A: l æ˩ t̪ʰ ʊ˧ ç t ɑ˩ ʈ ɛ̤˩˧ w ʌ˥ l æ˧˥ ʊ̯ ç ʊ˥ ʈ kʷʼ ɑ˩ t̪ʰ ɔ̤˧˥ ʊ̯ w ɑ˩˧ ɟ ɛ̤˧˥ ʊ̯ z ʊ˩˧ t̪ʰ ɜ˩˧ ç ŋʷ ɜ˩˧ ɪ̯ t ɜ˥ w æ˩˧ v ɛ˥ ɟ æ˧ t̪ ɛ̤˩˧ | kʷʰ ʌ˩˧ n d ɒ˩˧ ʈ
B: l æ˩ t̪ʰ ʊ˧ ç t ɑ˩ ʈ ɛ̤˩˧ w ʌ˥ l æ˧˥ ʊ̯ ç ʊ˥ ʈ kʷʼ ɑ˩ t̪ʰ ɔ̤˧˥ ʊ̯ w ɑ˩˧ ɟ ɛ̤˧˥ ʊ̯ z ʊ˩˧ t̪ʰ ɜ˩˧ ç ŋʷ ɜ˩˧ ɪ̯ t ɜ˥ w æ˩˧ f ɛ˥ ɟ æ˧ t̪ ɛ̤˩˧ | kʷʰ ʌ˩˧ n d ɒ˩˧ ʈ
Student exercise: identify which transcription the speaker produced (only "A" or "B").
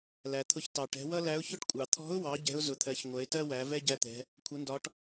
A